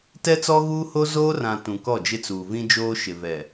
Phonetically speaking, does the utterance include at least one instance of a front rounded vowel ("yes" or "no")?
no